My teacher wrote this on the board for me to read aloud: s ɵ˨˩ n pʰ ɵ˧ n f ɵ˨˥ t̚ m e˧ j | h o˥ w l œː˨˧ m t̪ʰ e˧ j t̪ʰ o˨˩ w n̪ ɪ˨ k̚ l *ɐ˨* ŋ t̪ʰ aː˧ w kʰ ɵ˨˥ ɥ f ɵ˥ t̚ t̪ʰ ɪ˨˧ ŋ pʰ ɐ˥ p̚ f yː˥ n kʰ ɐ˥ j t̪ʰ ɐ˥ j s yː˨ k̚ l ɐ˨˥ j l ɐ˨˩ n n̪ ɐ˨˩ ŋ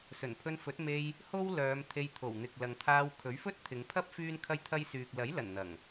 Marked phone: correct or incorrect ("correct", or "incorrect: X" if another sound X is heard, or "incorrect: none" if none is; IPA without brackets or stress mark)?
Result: correct